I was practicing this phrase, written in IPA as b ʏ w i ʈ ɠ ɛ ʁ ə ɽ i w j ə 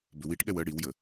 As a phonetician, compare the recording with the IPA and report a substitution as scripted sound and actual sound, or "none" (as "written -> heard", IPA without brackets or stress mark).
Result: ʁ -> w